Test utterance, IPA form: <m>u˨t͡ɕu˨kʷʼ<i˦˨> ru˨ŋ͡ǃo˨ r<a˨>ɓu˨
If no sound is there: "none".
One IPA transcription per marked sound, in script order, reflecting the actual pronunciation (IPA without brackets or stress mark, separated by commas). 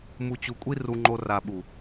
m, i˦, a˨